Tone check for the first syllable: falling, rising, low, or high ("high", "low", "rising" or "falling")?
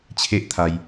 high